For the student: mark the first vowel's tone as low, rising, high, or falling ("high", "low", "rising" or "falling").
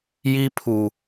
high